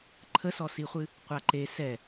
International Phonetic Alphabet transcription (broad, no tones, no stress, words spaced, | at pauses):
ǃʰəsɔsiχʷɨ | qʷaǃe sɛ